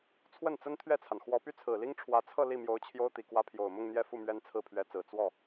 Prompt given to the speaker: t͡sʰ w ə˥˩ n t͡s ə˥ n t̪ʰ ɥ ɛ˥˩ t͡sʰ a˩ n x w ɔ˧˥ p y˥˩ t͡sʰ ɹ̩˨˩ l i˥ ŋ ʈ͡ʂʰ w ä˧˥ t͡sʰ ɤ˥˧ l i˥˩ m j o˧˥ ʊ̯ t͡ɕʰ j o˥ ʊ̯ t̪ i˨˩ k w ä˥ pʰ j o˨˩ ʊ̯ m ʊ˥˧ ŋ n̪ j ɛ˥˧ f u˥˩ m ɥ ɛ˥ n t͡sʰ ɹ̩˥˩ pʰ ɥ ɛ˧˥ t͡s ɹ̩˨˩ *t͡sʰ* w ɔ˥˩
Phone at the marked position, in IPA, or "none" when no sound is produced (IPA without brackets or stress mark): t͡s